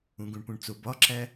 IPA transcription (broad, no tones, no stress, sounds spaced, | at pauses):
ũ ɡ ũ ɳ p ũ ɳ t͡s o b ɒ ǁ æ